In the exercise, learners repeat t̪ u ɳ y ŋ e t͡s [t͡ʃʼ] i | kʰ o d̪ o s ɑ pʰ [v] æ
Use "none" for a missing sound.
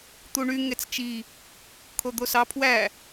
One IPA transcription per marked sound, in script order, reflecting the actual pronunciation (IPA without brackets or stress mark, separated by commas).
t͡ʃ, w